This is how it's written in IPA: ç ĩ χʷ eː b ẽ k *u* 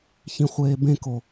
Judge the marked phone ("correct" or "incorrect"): incorrect